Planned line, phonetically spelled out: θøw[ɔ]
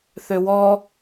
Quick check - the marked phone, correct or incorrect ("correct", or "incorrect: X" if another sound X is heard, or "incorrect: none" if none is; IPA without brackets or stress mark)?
correct